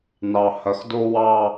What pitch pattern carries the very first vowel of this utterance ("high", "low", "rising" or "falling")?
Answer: low